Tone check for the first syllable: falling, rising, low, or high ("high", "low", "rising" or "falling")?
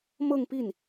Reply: falling